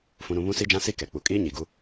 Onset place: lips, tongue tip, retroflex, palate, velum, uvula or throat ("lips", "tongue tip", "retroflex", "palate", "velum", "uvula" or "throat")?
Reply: lips